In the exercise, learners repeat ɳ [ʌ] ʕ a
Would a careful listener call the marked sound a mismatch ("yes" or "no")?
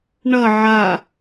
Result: no